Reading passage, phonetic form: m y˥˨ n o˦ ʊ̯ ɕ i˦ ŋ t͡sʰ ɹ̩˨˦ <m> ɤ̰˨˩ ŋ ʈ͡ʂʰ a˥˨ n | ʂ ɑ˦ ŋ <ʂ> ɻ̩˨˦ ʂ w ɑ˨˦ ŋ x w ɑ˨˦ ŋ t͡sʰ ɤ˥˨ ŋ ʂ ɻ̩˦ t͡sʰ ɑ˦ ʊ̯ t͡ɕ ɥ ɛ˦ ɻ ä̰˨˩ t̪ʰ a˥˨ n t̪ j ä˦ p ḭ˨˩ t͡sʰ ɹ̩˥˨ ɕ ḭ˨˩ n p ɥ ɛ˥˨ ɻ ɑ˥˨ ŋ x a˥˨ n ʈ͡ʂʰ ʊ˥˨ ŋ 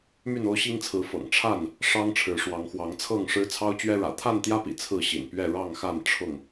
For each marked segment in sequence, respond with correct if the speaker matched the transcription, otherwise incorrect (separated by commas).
incorrect, incorrect